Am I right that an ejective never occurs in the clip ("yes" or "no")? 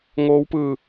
yes